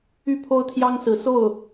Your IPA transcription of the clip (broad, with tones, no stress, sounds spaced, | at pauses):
y˥˩ pʰ o˥ ʊ̯ t̪ʰ j ɑ˥ ŋ s ɹ̩˧˥ s o˥˩ ʊ̯